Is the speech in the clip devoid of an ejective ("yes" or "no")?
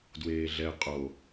no